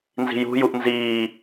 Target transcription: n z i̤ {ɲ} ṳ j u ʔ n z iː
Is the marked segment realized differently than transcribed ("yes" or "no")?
yes